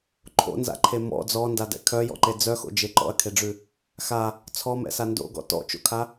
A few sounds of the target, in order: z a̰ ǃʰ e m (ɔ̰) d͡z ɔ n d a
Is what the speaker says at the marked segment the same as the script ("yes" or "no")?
yes